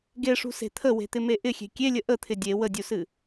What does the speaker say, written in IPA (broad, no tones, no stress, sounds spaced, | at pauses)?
ɡ e ʂ ṳ s e̤ t̪ʰ ə w e̤ t̪ ɪ m e ʔ ɪ xʲ e̤ kʲ e lʲ ə ʔ ə t̪ʰ ɪ dʲ e w ə dʲ u s ɨ